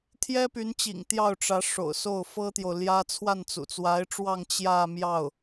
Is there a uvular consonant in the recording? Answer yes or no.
no